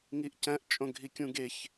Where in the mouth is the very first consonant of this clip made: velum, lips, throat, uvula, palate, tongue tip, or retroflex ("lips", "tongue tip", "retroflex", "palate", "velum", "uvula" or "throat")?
velum